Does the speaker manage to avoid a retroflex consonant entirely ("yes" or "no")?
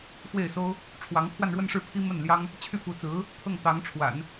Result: no